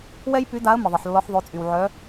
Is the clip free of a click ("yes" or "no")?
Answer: yes